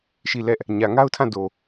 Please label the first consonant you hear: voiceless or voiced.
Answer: voiceless